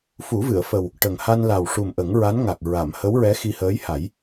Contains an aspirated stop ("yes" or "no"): no